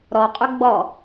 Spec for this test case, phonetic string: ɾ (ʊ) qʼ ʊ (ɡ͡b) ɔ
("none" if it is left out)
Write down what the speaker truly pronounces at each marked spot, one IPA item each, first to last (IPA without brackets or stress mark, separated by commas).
ɔ, ɡ͡b